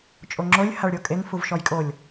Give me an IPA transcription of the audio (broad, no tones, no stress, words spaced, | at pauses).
t͡ʃʼoŋ͡ǁolʲ haɭɾʲokʼeŋ fuvʃɔjkʼolʲ